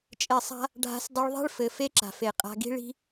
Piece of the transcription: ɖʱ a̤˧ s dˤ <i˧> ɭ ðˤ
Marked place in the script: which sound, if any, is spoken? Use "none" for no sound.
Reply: i˧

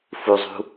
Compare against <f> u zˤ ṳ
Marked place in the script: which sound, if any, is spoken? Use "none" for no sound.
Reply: f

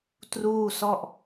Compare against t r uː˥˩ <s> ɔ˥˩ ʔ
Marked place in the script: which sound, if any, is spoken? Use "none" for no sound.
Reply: s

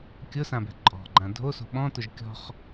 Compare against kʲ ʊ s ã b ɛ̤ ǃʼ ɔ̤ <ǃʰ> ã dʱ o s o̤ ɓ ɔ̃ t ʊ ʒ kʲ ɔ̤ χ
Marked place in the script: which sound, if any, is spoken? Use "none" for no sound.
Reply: ɡ͡ǃ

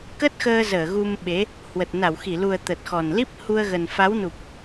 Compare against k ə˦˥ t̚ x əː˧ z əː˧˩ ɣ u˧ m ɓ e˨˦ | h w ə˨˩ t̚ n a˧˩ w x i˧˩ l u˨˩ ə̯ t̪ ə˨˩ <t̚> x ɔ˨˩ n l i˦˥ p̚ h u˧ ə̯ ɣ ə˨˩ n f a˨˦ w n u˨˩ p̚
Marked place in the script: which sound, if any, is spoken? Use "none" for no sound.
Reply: t̚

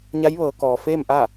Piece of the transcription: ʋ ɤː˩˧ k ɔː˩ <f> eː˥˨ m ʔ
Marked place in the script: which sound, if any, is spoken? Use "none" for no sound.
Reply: f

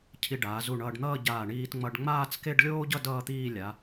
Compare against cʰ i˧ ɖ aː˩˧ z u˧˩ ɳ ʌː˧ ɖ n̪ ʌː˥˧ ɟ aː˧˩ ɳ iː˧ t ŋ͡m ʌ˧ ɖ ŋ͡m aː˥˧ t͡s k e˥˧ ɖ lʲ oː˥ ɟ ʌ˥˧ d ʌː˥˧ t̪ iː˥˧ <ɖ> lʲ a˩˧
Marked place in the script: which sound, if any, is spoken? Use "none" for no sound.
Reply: none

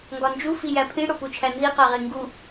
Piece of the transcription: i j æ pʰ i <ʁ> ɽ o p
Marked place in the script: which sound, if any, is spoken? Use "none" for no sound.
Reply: none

